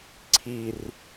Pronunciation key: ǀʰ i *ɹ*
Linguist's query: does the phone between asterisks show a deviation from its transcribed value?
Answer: yes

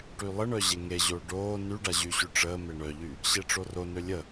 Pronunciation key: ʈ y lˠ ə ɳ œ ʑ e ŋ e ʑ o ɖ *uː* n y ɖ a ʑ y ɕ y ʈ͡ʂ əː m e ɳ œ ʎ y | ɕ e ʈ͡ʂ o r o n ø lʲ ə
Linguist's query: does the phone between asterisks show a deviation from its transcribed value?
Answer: yes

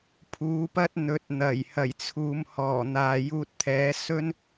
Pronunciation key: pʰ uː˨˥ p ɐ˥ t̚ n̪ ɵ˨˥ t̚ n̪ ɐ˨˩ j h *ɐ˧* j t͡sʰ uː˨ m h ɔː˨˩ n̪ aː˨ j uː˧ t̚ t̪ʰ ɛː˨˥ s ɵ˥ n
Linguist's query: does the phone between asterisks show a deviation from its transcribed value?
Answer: yes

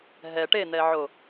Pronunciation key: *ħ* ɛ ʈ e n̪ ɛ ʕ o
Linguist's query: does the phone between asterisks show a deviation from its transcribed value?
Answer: yes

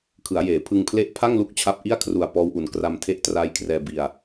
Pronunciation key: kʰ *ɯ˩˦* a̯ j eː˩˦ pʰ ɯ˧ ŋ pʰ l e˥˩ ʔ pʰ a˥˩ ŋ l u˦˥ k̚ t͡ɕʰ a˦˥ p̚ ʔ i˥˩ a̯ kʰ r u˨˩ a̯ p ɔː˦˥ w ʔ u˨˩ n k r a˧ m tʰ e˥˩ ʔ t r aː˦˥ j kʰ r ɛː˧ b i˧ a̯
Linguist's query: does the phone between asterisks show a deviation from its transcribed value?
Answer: no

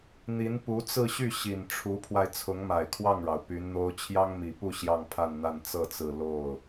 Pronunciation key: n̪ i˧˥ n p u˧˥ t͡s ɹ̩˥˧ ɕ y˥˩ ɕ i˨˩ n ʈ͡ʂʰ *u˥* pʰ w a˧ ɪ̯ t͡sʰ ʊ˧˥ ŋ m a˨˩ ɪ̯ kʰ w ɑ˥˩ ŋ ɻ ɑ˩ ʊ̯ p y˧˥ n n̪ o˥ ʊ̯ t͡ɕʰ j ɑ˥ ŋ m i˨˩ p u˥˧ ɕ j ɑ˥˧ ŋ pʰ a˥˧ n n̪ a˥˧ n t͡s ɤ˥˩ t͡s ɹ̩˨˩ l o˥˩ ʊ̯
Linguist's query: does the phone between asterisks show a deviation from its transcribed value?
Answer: yes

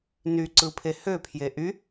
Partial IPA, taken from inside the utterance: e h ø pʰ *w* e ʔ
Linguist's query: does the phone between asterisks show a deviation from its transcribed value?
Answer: yes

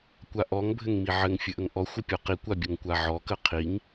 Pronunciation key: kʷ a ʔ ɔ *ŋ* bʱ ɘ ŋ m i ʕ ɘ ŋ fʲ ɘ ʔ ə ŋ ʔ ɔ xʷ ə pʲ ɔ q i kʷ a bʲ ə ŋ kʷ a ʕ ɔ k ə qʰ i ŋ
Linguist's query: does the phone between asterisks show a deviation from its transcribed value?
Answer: no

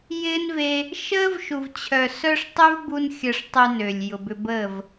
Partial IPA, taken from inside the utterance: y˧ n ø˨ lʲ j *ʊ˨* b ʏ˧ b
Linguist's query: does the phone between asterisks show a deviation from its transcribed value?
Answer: no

